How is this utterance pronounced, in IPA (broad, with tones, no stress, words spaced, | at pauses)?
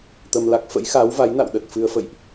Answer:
t̪ə˧mla˦˥k̚ fə̰˧˥jxa˨˦wva˨˦jna̰˧˨w ɗə˨˩t̚fɨ˧ə̯ fə̰˧˨jʔ